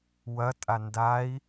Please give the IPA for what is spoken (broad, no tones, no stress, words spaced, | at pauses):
wɐ tʼandai̯